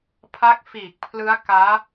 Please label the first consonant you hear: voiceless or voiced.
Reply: voiceless